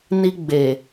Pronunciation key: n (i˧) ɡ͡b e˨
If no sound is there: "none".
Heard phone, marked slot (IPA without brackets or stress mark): i˧